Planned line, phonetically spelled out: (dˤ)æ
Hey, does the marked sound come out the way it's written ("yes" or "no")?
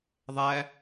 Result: no